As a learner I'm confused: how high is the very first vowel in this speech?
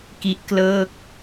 high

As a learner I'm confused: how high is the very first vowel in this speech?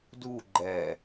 high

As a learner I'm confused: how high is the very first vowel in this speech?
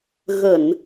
mid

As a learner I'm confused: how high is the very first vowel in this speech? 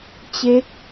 mid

